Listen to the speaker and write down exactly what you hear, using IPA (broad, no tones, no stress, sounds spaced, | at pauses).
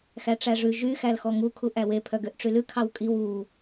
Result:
x æ ʈ͡ʂ æ ʐ ʉ ʒ y x æ l x ɔ ŋ u kʰ u ʔ æ w e pʰ œ ɡ ø ʔ ʈ͡ʂ y l ʉ kʰ ɑ w kʼ i w u